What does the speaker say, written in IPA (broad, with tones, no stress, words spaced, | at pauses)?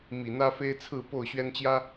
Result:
mi˨˩n̪ä˦fe˦ɪ̯t͡sʰɹ̩˥˨ po˥˨ʊ̯ɕɥɛ˦nt͡ɕjä˦